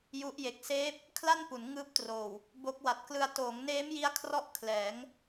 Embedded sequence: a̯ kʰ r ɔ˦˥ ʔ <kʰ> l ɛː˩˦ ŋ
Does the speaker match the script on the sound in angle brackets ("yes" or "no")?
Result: yes